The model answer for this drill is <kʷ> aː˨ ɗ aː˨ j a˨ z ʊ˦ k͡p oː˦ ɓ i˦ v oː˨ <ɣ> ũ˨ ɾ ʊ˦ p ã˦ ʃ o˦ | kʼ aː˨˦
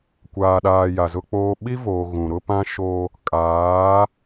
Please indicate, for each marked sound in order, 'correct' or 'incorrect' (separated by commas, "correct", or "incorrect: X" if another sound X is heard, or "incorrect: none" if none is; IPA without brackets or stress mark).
correct, correct